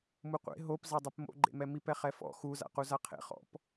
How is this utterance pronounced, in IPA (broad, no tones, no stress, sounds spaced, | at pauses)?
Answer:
m u qʷ ḛ ɦ o p z a dˤ e p m o̰ ɡ͡ǃ ḛ m ɛ m i p ɛ χ ɛ f ɔ̰ x u z a̰ q u z a qʰ ḛ χ ɔ̰ p